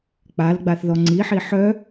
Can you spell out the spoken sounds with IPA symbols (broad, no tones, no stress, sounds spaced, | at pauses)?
k͡p a l ɡ͡b a θ ð ɔ ŋ͡ǀ i ħ i ħ œ